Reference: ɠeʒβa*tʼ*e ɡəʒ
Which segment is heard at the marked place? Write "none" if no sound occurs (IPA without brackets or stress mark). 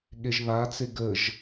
t͡s